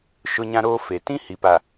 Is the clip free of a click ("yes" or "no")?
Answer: yes